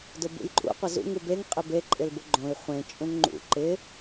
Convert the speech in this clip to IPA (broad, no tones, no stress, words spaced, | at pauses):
dʊbṵjǃʼṵ qʷɪzṵ ŋubeŋ qʼɪbe ǃʼɪlbʊɡ͡ǃõi̯ χʷẽ t͡ʃʼũŋŋ͡ǃṵ ǃɪ